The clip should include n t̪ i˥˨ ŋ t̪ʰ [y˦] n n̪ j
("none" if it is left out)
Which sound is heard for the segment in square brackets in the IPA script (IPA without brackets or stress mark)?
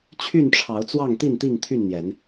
y˥˨